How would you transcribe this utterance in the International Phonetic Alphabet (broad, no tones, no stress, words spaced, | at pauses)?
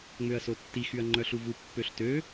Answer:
ŋ͡møɐ̯sotːixyɐ̯ ŋ͡ǃœɬuvu pːøɬtø